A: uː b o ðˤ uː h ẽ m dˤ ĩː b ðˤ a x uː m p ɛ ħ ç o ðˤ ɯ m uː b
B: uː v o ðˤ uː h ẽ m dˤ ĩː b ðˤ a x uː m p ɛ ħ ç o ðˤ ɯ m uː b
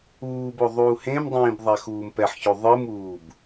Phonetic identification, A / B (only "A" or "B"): A